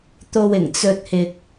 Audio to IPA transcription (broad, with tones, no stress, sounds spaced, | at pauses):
t̪ o˧ w ɪ˨˩ ŋ t͡s ɵ˧ t̚ h ɪ˧ k̚